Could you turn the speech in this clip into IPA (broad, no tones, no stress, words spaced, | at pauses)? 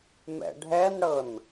mɛ̰ɖʱɛnɽɤn